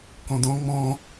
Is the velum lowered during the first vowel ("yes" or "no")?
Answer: yes